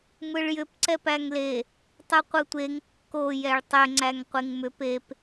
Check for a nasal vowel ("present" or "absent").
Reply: absent